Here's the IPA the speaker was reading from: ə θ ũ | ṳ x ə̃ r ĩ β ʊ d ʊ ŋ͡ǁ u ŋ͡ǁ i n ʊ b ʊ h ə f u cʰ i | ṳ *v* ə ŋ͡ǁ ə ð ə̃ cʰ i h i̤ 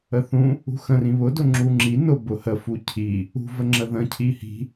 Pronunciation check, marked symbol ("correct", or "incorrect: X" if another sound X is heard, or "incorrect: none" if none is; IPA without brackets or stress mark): correct